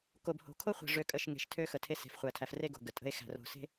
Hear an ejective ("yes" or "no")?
yes